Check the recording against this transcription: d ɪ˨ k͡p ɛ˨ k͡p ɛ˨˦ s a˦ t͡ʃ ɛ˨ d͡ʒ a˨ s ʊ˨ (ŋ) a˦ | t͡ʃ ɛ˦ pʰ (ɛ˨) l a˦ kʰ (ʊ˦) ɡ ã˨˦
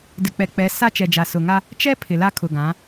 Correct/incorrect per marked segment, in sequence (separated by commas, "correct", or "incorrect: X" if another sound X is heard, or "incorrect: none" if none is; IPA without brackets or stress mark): correct, incorrect: ɪ˨, incorrect: ʊ˨